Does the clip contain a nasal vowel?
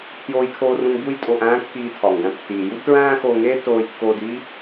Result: yes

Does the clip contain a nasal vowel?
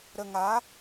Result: no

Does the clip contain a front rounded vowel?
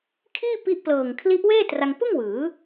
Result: no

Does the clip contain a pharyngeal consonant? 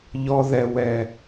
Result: no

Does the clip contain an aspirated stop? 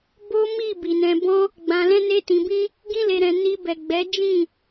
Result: no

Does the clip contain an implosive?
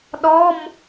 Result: yes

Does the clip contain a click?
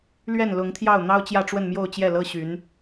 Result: no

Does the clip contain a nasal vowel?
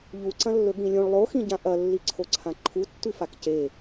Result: yes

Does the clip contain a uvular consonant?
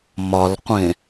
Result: yes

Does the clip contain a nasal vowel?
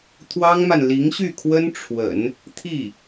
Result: no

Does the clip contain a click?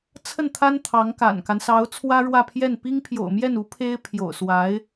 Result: no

